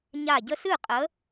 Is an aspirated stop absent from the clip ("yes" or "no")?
yes